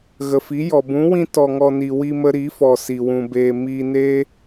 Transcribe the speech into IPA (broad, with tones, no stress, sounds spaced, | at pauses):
ɣ ə˨ f i˨˦ j ɔ˨ b ũ˨˦ w ĩ˧ t ɔ˨ ŋ ɔ˨ n i˨ w i˧ m ə˧ ɾ i˨˦ f ɔ˨ s i˨ w ũ˨ b eː˧ m iː˧ n eː˦